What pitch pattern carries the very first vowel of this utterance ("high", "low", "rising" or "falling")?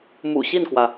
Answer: low